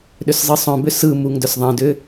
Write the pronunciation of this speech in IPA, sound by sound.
ɗ ʏ s zˤ ɯ sˤ œ̃ b ʏ s ɯ m u ŋ d œ s ðˤ ɛ̃ d ʏ

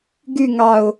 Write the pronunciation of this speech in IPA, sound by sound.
ɡ y ŋ ɑ ʊ̯

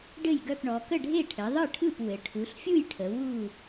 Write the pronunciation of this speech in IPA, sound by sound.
ɖ ɘ˥˨ j ɡ œ˥˨ p ɳ ɔ˩˧ k ə˥˨ ɖʱ e˥˨ ʈʰ ɘ˩˧ ðˤ ɯ˥˨ ʈʰ ɯ˥˨ p w ɘ˩˧ ʈʰ u˩˧ ɬ fʲ u˥˨ j ʈʰ ə˩˧ w u˥˨

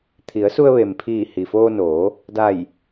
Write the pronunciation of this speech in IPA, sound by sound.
t̪ʰ i˩˧ ə̯ s u˧ ə̯ ʋ e˩ m pʰ iː˧˩ h i˩ f oː˧ n oː˩˧ | d a˧˩ j

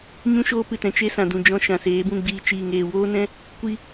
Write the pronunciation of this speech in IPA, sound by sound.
ɲ ũ˦ ʃ oː˧ p ɨ˨ t ɛ̃˨ t͡ʃ e˦ s ã˨ d ũ˨ d͡ʒ ɔ̃˧ ʃ ã˨ s eː˨˦ b ũ˦˨ ɡ͡b iː˧ t͡ʃ iː˨ ŋ eː˨ w oː˦ n ɛ̃˦ | kʷ i˦

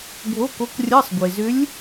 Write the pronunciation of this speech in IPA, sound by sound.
ɡʱ o˧˥˧ k o˧˥ k rʲ ɜ˧˥˧ sˤ ɡʷ e˩ z ʏ˧˥ lʲ

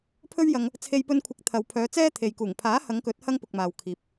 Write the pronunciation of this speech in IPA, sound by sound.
pʰ ɵ˥ ɥ j ɐ˧ ŋ | t͡sʰ e˧ j p ɵ˧ n kʷʰ ɪ˨˥ k̚ t̪ʰ ɐ˨ w pʰ œː˨˧ t͡s ɛː˥ t̪ʰ e˨ j k uː˨˩ ŋ pʰ aː˨˥ h ɐ˨˧ ŋ k ɵ˨˥ t̚ h ɐ˥ ŋ p ʊ˨ k̚ m aː˨ w kʰ iː˨ p̚

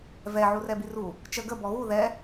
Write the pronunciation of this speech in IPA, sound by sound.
v ɛ ʕ u r ɛ b i r u | t͡ʃ ə ɡ ə b ɔ ɣ u ð ɛ

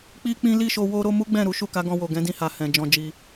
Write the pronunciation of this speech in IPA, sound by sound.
k͡p i˦ k͡p ĩ˦ l i˦˨ ʃ o˧ w o˧ ɾ o˧ m u˦ ɡ͡b ɛ̃˦˨ ɾ u˨˦ ʃ u˦˨ k a˨˦ ɡ ɔ̃˧ w o˨ ɡ ɛ̃˨˦ d ĩ˧ h a˨ h ɛ̃˨ d͡ʒ ɔ̃˧ d͡ʒ i˧

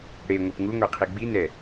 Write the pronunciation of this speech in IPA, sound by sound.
ɽ e ŋʷ e p ŋ u ŋʷ e qʰ i ɡ͡b i n ɛ

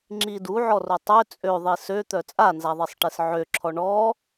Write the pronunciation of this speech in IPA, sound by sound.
ŋ͡ǁ i d u ʕ ɔ r o tˤ ø t͡sʼ ø ðˤ i s ø t̪ œ t͡sʼ a n z a ðˤ e sˤ ʈ e s ʕ ø ǁʰ ɔ ɳ ɔ

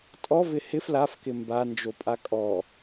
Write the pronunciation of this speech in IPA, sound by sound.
tʼ ɔ v ɪ h ɪ f l a f k ɪ m b a n d͡ʒ o pʼ a kʼ ɔ

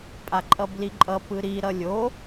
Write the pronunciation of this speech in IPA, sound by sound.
pʼ a ǃʼ ʌ b l i ǃʼ ʌ p ɯ ɾ i ɾ ʌ lʲ o

